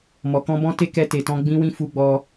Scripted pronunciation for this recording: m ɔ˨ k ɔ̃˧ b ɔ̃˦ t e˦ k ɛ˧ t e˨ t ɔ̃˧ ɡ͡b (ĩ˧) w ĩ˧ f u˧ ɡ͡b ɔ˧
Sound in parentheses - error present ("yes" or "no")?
no